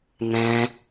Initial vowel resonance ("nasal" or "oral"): nasal